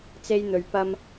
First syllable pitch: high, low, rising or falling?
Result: high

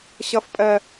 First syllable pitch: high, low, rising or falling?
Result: high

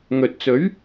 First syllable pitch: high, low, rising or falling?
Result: low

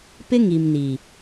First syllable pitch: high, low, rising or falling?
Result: high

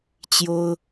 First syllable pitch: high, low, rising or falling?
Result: high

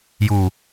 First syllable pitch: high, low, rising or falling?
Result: low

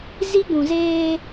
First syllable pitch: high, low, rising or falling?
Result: high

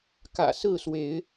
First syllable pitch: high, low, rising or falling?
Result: low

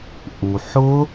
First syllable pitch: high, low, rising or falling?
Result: low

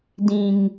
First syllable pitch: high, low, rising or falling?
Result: low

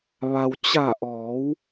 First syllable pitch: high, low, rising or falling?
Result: low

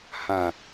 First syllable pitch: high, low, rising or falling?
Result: low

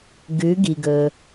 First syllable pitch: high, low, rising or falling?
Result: rising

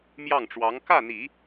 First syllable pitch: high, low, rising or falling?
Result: falling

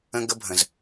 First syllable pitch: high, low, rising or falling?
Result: high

